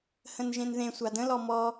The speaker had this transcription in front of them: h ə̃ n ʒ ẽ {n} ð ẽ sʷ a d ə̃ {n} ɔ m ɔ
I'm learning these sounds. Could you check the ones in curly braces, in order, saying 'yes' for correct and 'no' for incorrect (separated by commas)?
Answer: yes, no